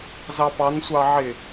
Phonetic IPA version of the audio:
z ɑ p ɑ n sʷ ɑ ʕ ɪ

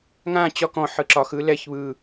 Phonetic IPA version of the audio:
ŋ ã t͡ɕ ɒ k ɔ̃ ħ ɯ ǁ ɒ x ɯ l ɛ ç β ɯ

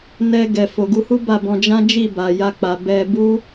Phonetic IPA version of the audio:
n ɛ˧ ɡ ɛ˨ f o˨ ɡ u˧ h u˦ b a˦˨ b ɔ̃˧ d͡ʒ ã˦ d͡ʒ i˦˨ b a˨ j a˧ k͡p a˨ b ɛ˧ b u˦

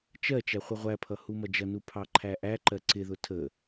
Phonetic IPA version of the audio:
t͡ʃ ɜ t͡ʃ æ χʷ ə ʁʷ æ pʰ ʌ h u m ʌ d͡ʒ ʌ n u pʰ ɑ ǃʰ æ ʔ æ ǃ ɜ ǀ ɪ ð ʊ tʰ ə

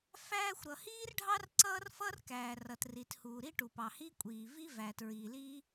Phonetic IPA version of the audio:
f æː˥ xʷ ɾ ʌ˩ h iː˥ r ɖʱ ɑ˥ r ǀ ʌː˥ r f ʌ˥ r k æː˩ r ʌ˩ t r i˩ t h uː˩ ɾ i˥ ʈ u˩ p ɑ˩ h i˥ kʷʼ iː˩ v i˥ v æ˩ t ɹ iː˩ l iː˥

